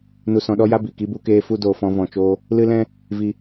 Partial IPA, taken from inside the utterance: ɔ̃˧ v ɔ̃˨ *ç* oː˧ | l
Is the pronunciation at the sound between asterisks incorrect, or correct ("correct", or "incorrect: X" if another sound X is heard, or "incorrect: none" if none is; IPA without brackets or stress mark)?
incorrect: t͡ʃ